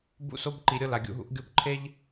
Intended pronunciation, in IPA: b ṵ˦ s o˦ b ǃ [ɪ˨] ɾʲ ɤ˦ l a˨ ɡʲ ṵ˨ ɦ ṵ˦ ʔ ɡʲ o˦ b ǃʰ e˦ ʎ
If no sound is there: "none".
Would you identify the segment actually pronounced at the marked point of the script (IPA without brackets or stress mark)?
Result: i˨